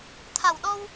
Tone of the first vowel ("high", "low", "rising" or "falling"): low